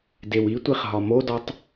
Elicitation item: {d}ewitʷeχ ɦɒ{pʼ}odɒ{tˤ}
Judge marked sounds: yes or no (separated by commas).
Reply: yes, no, yes